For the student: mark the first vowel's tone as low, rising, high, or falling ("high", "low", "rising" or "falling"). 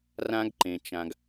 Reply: high